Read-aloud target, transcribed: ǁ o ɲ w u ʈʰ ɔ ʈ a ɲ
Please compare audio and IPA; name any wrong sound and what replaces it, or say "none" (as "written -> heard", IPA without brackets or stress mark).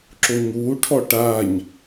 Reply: none